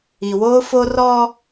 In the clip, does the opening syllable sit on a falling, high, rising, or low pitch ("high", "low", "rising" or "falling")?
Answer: low